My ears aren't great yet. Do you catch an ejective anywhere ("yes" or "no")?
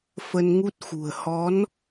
no